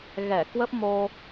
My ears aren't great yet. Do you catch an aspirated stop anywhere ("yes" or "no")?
no